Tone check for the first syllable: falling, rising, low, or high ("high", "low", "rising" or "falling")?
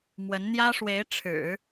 rising